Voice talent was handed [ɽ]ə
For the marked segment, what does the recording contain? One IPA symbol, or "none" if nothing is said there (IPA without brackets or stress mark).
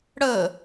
ɽ